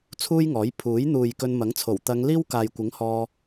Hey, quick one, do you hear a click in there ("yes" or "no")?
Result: no